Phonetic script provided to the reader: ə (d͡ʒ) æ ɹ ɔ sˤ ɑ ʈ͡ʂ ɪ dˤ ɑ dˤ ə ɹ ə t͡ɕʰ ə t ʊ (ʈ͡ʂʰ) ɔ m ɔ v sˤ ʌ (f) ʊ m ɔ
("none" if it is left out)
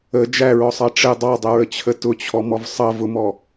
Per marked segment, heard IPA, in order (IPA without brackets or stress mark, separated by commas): d͡ʒ, t͡ɕʰ, v